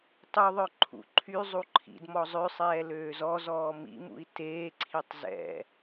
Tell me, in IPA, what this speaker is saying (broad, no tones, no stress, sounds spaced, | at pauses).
tˤ u ðˤ œ ǃʰ ṵ ǃʰ y zˤ u ǃʰ ḭ d m ɔ zˤ ø sˤ ɛː l øː z ɔ z ɔː m ḭ m ṵ i̯ t eː ǀʰ i tˤ z ɛ̰